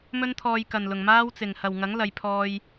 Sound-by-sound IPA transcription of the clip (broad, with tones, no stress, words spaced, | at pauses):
mɵ˥nt̪ʰɔː˧jkɐ˨nlʊ˨ŋ maː˥wt͡sɪ˨ŋ hɐ˨wŋɐ˨˥ŋ lɐ˨˧jpʰɔː˧j